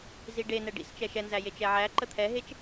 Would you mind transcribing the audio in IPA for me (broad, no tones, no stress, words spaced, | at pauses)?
ziɖe nɛɖḭst͡ʃɛ ʃɛnzæje t͡ʃɛʕæ ǃət̪ʰɛɦet͡ʃ